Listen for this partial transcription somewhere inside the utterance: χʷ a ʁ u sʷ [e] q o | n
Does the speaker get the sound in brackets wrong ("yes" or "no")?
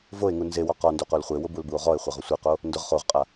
no